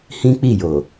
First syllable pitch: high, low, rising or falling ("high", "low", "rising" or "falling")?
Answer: high